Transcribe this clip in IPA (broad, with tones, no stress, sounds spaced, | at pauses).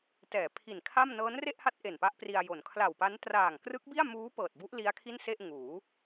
t ɛː˩˦ pʰ i˨˩ n kʰ a˥˩ m n ɤː˦˥ n r e˥˩ ʔ h a˦˥ t̚ ʔ e˨˩ n p a˦˥ ʔ p r i˧ a̯ j o˩˦ n kʰ l a˨˩ w p a˦˥ n t r aː˨˩ ŋ k r ɯ˦˥ k̚ b i˥˩ a̯ m uː˦˥ p ɤː˨˩ t̚ b u˦˥ ʔ l i˦˥ a̯ kʰ i˥˩ n s e˥˩ ʔ ŋ uː˩˦